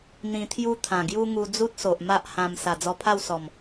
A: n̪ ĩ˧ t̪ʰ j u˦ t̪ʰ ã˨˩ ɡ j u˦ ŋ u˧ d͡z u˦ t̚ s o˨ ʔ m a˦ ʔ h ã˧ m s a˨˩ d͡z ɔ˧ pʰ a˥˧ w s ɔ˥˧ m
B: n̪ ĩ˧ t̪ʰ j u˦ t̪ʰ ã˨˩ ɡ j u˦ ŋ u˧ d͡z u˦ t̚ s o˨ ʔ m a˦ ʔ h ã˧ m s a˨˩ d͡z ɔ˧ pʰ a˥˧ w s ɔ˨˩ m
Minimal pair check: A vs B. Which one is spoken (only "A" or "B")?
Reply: B